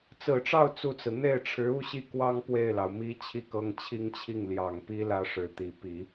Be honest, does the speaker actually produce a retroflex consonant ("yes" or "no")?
yes